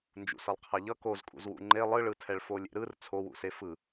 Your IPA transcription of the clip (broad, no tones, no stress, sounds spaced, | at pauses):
n d͡ʒ ṵ s ʌ lˠ qʰ a ʎ ʌ k o z kʼ ṵ z w ṵ ŋ͡ǃ e lˠ ɯ ɭ ɯ tʰ ɛ ɭ f o lʲ ḛ ɾ ɯ r t͡sʰ o w ṵ s e f ɯ